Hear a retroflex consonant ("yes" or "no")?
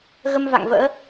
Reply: no